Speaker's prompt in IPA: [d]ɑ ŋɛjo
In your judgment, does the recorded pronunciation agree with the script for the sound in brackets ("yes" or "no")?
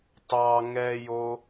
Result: no